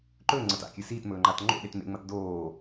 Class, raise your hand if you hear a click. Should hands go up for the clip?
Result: yes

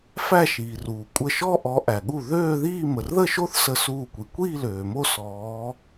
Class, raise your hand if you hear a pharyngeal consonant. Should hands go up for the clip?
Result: no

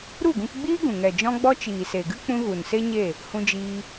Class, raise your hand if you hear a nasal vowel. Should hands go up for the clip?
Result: yes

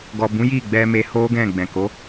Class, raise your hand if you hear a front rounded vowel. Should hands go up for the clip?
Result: no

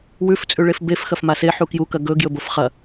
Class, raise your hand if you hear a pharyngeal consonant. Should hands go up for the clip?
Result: yes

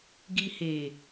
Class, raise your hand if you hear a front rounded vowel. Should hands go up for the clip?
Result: no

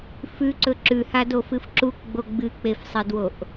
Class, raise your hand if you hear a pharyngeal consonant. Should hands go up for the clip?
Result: no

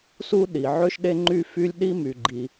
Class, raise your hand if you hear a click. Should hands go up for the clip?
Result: yes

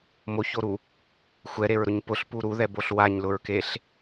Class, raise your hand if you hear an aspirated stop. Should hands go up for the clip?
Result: no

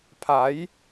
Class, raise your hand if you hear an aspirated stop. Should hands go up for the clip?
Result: yes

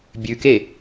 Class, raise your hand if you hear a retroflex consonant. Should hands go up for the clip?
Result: no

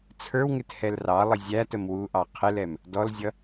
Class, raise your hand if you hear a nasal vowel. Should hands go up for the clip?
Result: no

